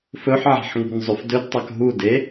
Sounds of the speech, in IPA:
f ɵ ħ ʕ a̤ ħ ŋ ṳ n zˤ ʉ f d ɵ d tˤ a k ɦ u d e

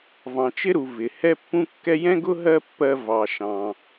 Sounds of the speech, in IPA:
v ɑ̃˩ t͡ʃ ɪ˥ ɾ u˩ v ɪ˩ h ɛ˥ pː ũ˥ kː ɛ˥ j ɛ̃˥ ɡ ʊ˥ ɦ ɜ˥ pː ɜ˧ v ɑ˩ ʃ ɑ̃˩

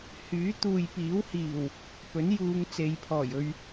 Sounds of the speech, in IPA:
h yː˨˥ t̪ uː˨ j p iː˨˥ w h iː˨˩ w | p ɵ˨˥ n j uː˨˧ ŋ t͡s e˨ j pʰ ɔː˨˩ j ɵ˧ ɥ

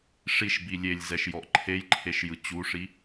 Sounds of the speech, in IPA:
ʂ i ʃ b i lʲ e lʲ z ɛ ʃ j ɔ ʔ ǃʰ e j ǃʰ e ʃ j ɯ t͡ɕ u ʂ i

